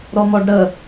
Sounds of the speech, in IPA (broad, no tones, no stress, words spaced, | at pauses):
ɾɔmɔɖɾə